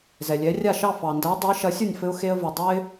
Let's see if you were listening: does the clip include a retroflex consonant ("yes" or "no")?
no